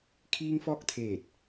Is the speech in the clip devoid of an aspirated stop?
no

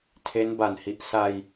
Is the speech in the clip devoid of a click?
yes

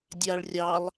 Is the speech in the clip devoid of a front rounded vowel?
yes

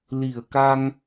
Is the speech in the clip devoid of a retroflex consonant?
yes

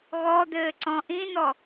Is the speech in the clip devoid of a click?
no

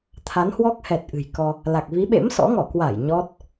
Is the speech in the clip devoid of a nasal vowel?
yes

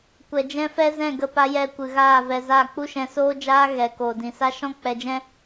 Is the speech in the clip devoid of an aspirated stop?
yes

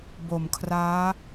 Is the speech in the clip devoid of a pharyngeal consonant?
yes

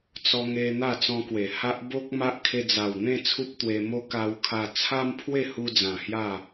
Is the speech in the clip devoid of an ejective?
yes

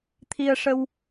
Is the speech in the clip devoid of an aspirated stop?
no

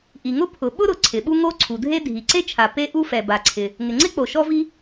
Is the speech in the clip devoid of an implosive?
no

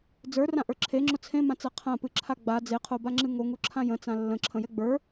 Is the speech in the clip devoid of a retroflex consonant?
yes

